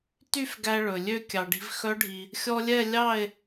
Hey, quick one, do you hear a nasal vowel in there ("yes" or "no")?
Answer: no